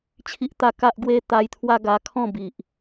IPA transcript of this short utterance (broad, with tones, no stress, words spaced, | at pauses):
t͡ɕʰi˦ʔt̪a˥˧ ka˦ʔɡwe˦ t̪a˧jt̪ʰwa˦ɡa˧kʰɔ̃˥˧ bi˨ʔ